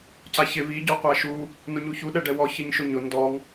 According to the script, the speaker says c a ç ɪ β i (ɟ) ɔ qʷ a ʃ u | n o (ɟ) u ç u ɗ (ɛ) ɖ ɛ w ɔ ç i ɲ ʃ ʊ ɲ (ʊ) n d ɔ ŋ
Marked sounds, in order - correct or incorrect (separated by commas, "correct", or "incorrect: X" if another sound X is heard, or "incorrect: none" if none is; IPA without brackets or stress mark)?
correct, incorrect: ɲ, correct, correct